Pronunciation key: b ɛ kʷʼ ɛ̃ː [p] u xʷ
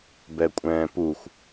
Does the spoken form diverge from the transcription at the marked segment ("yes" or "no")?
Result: no